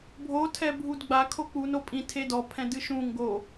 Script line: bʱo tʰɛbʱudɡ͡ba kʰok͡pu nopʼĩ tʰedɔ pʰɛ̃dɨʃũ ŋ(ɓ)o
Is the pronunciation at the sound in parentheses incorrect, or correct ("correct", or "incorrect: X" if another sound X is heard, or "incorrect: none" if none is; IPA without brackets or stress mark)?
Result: incorrect: ɡ